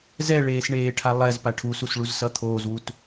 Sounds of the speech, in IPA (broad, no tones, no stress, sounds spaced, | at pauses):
z ɛ ɭ eː s ɳ eː ʈʰ a lˠ ɛ z p a ʈʰ u s u s ɭ u z s ʌ t̪ʰ oː z w u t